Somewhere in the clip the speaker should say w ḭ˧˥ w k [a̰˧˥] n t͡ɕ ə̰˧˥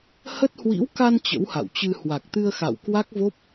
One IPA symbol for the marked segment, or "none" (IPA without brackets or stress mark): a˧